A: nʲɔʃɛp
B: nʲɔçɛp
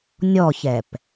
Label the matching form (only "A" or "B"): B